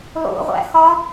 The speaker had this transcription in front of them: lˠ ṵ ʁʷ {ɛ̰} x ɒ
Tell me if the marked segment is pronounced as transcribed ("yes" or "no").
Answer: no